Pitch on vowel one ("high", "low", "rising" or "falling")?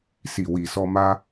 low